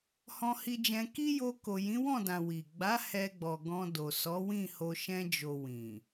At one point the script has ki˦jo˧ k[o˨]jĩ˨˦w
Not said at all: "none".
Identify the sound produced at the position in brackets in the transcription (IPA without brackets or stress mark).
o˨